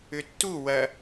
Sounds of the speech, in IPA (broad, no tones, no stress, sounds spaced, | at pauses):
ʏ tː u w ɐ